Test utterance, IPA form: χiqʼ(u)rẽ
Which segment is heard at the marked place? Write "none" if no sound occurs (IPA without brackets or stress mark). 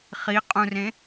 ũ